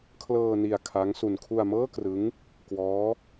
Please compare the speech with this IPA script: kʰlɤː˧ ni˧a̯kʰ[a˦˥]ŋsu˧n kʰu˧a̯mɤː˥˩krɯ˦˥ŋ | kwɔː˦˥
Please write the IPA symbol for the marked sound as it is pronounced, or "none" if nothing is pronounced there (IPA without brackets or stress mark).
a˦˥